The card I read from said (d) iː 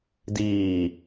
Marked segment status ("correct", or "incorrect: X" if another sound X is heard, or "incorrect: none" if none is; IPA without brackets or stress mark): correct